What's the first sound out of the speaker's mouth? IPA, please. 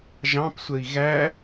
ʒ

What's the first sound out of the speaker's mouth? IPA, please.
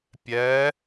pʲ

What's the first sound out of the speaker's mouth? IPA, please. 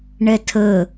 ɳ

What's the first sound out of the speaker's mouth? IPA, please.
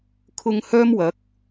kʰ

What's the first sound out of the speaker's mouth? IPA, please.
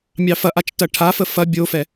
mʲ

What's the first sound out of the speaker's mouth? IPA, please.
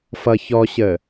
f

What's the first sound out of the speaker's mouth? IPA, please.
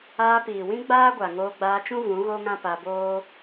aː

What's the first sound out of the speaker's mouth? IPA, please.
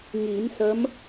ŋ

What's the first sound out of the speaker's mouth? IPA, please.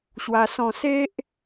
ɕ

